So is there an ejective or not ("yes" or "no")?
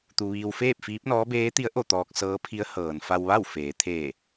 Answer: no